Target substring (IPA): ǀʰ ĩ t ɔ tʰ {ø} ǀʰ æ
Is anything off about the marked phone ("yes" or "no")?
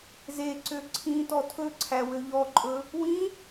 yes